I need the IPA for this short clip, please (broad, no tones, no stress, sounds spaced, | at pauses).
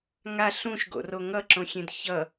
ŋ a ɬ ũ ʃ ɡ o̰ r o ŋ ʌ ǁ õ xʲ ẽ d ç ʌ